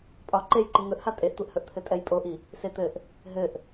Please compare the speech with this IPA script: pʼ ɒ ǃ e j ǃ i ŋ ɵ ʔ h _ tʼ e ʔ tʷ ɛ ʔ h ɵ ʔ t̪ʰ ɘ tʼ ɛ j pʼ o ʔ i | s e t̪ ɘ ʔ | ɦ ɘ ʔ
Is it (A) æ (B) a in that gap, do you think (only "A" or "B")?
B